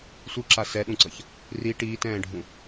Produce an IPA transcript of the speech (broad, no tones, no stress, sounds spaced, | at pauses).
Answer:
sʷ ɯ ǁ a s ɛ ɗ ũ ǀ ʌ ç | r i ʈ iː t ɛ̃ː ɖʱ ũ